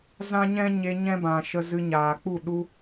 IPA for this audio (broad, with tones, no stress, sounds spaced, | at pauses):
z ã˦ ɲ ɛ̃˦ ɲ e˧ ɲ ɛ̃˦ b ã˨ ʃ ə˧ z ɨ˧ ɲ aː˨ k͡p u˦˨ ɗ u˧